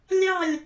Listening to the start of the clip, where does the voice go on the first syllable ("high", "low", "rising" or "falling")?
falling